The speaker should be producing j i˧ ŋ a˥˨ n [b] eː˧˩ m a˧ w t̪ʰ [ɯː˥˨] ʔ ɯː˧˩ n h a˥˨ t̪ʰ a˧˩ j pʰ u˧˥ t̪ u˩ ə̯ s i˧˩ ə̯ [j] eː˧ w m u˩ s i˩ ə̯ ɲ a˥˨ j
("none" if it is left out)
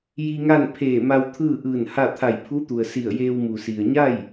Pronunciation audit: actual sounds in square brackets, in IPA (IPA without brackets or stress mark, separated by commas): pʰ, ɯː˥˨, j